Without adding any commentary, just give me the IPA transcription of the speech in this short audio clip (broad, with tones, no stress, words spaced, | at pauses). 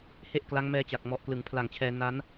he˥˩ʔkla˦˥ŋmɛː˦˥t͡ɕa˨˩k̚ mɔ˨˩ʔklɯ˩˦ŋ pʰla˨˩ŋt͡ɕʰɛː˧na˦˥n